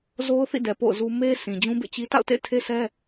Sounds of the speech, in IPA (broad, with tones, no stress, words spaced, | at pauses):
zo˦ʊ̯θḭ˦˨ dɛ˨ po̰˦˨ʊ̯zu˦ me˦ sʰĩ˨d͡ʑũ˦bḛ˦˨t͡ɕi˦ ta̰˦˨ʊ̯tḛ˦˨ɪ̯tʰe˦sʰɛ˦